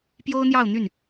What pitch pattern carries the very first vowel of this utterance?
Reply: high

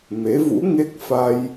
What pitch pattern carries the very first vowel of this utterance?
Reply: rising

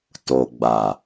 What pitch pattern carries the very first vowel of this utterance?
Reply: low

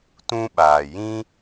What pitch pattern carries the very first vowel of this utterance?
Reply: high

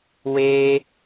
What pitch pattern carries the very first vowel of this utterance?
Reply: high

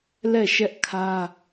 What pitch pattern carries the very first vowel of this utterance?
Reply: falling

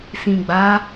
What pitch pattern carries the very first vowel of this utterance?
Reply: low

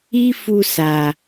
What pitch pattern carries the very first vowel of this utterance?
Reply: high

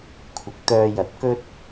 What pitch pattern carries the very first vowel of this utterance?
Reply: rising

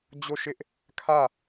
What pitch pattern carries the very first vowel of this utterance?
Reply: falling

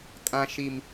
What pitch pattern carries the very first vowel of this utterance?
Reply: high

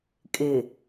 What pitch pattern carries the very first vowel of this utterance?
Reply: low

